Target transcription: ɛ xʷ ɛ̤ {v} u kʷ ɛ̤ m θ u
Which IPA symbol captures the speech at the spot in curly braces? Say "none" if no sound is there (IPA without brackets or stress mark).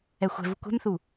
v